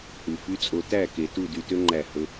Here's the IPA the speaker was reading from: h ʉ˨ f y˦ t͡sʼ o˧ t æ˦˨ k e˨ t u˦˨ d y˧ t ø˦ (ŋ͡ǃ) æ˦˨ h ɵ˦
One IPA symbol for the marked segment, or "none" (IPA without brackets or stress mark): ŋ͡ǃ